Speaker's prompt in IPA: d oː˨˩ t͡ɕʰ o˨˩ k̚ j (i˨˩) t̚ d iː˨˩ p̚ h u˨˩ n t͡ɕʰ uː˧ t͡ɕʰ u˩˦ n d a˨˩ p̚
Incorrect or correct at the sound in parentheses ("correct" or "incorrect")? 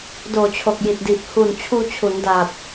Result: correct